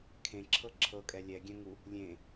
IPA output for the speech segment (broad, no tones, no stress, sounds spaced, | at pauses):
kʰ ẽ ǁʰ ɤ ǁʰ ɤ kʼ ɛ lʲ ɛ ɡʲ ɛ̃ ŋ u | lʲ ẽ